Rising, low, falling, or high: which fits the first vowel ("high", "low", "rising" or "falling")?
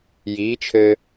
rising